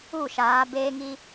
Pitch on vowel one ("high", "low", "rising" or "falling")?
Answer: falling